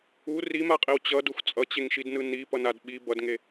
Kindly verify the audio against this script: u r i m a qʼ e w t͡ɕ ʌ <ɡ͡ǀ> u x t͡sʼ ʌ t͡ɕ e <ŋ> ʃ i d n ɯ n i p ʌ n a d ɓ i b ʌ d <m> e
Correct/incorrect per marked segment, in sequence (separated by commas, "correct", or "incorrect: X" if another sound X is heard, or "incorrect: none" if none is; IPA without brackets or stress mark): incorrect: d, correct, incorrect: ŋ